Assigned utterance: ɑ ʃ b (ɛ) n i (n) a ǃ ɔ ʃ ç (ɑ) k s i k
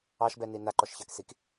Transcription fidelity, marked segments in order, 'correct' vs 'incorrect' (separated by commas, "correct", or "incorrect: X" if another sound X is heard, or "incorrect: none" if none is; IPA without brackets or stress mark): correct, correct, correct